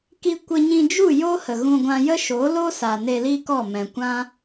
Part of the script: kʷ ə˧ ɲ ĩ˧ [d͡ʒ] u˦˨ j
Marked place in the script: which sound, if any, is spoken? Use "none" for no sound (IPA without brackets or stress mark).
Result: d͡ʒ